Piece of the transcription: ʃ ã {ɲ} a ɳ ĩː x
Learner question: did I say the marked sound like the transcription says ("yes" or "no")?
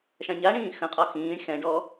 yes